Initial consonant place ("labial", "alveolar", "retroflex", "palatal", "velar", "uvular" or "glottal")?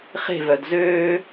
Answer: uvular